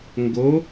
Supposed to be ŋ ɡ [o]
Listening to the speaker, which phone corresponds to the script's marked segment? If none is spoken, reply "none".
o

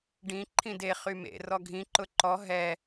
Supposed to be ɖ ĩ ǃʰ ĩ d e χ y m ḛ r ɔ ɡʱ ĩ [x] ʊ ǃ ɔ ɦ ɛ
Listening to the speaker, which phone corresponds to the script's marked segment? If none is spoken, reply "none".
ǃ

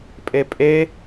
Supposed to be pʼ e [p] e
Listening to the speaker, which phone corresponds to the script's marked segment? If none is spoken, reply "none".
pʼ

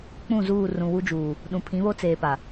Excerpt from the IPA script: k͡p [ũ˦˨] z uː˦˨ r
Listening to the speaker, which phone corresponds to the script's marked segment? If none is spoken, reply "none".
ũ˦˨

